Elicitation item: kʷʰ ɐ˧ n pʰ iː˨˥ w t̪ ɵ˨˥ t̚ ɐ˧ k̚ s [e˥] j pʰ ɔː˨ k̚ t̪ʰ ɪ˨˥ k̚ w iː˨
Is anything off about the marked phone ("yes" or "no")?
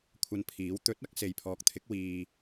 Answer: yes